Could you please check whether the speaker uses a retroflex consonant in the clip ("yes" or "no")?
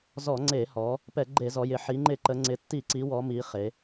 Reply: no